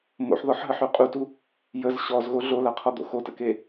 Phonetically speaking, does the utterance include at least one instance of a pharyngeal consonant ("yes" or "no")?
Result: yes